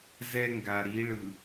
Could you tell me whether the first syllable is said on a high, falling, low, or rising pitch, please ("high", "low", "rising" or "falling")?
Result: high